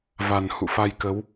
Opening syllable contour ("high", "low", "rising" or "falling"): low